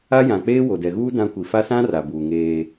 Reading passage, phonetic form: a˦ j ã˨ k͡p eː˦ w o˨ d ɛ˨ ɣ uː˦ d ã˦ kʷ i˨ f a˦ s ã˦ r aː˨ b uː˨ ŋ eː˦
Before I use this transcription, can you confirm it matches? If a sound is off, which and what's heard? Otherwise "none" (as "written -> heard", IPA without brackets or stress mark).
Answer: aː˨ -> a˨